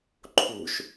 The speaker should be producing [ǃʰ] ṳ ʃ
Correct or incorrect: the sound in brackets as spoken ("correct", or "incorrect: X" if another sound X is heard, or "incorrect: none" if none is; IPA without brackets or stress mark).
correct